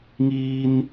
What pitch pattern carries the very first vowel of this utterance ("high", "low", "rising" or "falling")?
high